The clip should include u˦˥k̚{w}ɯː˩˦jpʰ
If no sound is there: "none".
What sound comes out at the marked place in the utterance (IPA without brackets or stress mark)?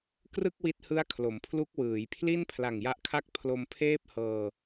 w